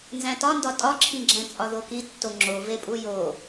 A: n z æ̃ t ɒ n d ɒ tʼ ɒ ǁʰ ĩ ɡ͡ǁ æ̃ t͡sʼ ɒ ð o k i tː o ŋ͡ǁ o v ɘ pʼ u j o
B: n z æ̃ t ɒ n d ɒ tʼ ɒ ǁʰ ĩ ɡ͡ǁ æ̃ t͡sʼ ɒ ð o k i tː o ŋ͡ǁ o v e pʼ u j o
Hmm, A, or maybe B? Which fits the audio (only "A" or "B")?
B